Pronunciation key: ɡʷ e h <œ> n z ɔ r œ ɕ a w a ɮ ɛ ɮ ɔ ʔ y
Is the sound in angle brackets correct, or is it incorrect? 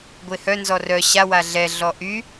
correct